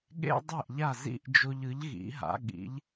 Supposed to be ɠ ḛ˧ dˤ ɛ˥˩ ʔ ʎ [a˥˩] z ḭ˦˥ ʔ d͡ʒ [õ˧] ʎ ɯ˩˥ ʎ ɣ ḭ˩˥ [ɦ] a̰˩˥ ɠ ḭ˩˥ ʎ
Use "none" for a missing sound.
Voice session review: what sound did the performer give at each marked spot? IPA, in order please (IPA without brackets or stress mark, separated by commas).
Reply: a˥˩, o˧, ɦ